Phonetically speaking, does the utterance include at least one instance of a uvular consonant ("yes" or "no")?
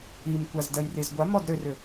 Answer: no